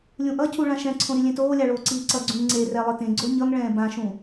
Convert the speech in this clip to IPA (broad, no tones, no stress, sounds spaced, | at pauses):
lʲ ũ ʔ ʌ cʰ u ɭ ã ʃ ɛ̃ ǀʰ õ ɾ i lʲ ẽ t oː lʲ a ɭ oː ǀ iː ǀ ʌ ɡ͡ǀ ũ ŋ ŋ͡ǀ e r ɛ lˠ ɯ t ẽ ɡ͡ǀ o ɲ ʌ ŋ ɭ ɛ̃ː b ã ʃ ũ